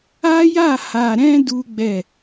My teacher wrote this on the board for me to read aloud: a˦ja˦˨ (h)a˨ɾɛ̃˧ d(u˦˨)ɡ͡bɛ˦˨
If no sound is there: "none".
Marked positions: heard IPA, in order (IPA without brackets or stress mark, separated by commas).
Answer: h, u˦